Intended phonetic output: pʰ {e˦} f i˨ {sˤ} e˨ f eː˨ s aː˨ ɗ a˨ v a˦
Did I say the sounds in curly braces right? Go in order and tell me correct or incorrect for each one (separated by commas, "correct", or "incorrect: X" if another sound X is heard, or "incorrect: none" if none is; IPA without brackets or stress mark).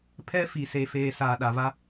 incorrect: ɛ˦, incorrect: s